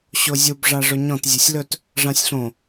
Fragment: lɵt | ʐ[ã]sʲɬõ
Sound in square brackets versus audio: correct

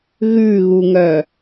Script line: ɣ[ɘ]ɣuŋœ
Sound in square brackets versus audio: incorrect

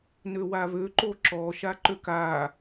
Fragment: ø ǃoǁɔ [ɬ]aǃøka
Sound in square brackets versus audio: incorrect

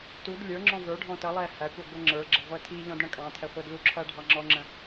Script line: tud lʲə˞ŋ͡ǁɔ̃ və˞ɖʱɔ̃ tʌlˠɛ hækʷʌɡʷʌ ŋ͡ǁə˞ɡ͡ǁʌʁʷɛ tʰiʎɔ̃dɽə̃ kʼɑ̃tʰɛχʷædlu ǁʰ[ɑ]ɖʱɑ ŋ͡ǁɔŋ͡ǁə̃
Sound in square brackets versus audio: incorrect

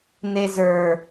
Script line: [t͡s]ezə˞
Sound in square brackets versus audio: incorrect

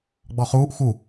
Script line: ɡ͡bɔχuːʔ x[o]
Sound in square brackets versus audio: incorrect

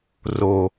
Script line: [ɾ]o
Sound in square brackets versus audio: incorrect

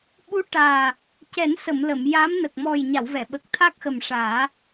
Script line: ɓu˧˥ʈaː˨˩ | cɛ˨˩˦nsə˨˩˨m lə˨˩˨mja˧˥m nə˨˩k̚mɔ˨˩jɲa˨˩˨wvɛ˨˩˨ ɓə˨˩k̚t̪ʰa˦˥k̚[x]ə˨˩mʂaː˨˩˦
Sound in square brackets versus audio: correct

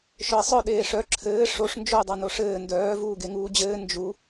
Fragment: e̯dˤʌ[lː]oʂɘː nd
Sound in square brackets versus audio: incorrect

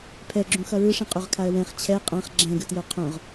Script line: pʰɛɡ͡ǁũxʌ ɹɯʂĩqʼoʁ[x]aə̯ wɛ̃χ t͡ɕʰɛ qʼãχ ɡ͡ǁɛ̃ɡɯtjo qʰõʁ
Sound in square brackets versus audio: incorrect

